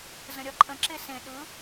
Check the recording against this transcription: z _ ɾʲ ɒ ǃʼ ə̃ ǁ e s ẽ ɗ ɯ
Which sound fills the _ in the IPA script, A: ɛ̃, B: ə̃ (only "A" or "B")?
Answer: B